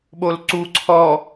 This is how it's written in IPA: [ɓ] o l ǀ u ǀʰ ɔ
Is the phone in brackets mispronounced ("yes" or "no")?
no